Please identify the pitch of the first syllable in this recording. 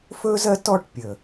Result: high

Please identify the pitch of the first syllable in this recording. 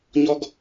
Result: high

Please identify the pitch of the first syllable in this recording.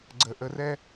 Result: low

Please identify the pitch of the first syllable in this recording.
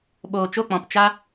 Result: low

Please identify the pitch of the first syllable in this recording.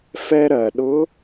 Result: high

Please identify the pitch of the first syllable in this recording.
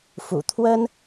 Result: low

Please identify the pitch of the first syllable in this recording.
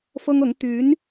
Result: high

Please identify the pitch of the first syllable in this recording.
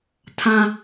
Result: low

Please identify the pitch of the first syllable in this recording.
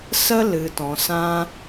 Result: high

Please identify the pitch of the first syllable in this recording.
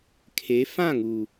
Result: rising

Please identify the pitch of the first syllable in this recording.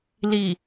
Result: low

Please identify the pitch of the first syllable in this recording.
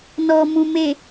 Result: low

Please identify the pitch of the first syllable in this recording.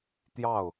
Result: falling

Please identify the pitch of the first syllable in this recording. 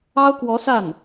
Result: high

